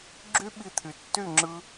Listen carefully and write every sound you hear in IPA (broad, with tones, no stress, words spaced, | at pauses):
ɡ͡ǁy˦ɓi˧t̪ʰy˨tːy˦˨ ŋ͡ǁɯ˦